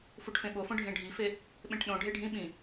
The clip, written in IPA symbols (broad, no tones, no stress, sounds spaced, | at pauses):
f u ʈ f ẽ ɓ o f õ ɖʱ ẽ ɖʱ i f e | ɓ ẽ ʈ ɗ õ ɖʱ e ɖʱ ĩ ɓ ĩ